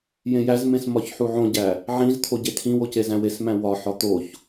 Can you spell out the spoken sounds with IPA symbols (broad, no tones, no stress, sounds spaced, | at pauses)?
j ẽ j æ z m ẽ s m ɒ ç ħ u ʕ õ ɟ æ | ʕ ĩ z t̪ʰ o ɟ e tʰ ĩ w o c e z æ̃ w e s m æ̃ w ɒ ħ ɒ t̪ o ç